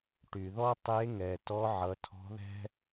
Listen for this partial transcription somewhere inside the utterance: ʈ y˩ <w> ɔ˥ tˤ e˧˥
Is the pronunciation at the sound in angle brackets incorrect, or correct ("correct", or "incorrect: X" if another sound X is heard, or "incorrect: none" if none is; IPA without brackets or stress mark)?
incorrect: ð